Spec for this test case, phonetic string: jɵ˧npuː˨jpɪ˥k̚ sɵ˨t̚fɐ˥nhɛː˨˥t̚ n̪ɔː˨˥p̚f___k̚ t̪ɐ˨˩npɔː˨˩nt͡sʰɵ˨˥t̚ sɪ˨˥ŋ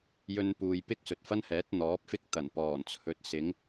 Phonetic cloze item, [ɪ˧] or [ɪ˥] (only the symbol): ɪ˥